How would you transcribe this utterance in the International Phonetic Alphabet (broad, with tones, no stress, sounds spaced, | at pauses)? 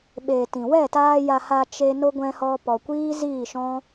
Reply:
ɓ e˨ t ĩ˨ w ɛ˦˨ t aː˧ j a˧ h a˧ t͡ʃ e˧ n o˧ ɡʷ ɛ̃˧ h ɔ˧ p ɔ˨ kʷ iː˦ z iː˦˨ ʃ ɔ̃˦